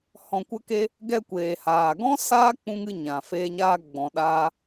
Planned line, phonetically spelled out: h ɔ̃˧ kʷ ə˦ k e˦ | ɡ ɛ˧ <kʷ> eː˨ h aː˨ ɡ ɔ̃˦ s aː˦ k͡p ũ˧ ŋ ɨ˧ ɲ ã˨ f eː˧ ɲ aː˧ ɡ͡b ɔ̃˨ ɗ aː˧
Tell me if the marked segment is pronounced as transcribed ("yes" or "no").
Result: yes